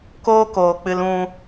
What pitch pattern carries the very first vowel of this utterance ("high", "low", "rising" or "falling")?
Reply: high